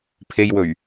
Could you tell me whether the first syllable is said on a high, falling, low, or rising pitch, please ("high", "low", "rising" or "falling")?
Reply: low